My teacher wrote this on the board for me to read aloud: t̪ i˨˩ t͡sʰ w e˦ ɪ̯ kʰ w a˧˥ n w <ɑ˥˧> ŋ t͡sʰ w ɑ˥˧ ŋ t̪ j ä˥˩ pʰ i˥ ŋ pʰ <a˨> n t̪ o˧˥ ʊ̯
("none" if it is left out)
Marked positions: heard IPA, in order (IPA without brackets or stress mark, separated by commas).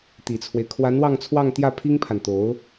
ɑ˥˧, a˨